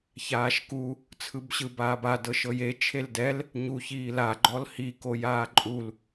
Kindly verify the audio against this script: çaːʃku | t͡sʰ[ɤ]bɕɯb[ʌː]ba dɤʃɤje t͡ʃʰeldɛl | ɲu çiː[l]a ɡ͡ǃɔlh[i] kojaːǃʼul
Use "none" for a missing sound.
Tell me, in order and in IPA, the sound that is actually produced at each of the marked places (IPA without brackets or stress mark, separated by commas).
ɯ, aː, l, i